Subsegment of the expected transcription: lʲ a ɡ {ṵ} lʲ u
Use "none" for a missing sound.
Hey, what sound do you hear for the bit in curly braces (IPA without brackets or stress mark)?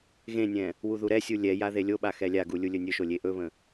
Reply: u